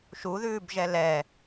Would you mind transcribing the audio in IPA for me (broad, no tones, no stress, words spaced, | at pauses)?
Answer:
ʃuðʉːbʒɛ lɛ